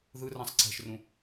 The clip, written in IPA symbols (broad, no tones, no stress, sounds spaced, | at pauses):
ð ɯ r ã sˤ ǀ ɛ̤ ʃ r ũ